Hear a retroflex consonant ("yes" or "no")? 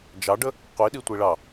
yes